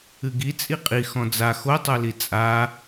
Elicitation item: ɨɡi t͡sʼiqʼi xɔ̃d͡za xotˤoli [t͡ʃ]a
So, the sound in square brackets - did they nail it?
no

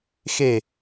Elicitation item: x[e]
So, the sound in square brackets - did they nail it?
yes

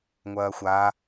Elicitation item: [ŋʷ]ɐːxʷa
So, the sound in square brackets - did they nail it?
yes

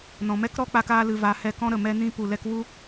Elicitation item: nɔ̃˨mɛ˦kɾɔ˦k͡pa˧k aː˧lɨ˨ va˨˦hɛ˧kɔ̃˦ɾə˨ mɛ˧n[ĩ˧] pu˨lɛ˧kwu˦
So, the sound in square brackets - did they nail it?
yes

